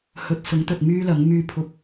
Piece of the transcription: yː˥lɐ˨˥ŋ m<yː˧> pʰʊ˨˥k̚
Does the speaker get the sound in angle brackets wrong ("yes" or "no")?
no